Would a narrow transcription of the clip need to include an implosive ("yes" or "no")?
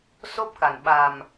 yes